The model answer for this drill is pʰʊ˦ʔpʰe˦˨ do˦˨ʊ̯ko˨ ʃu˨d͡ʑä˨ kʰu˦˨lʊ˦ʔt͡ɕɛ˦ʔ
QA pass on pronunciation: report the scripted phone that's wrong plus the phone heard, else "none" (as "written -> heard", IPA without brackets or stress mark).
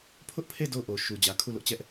k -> ʔ